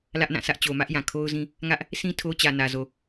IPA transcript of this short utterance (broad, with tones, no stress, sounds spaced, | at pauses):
l ä˦ ʔ n ã˦˨ sʰ ä˦ ʔ t͡ɕ o˨ m ä˦ ʔ j ã˨ kʰ o˦ ʊ̯ z ĩ˦ | ŋ ä˦ ʔ | sʰ ĩ˦ tʰ o˦ t͡ɕ ä˨ n ä˨ z o˨